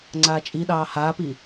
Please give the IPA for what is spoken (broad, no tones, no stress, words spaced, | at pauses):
ŋ͡ǀaːt͡ʃʼiɗɑː haːpi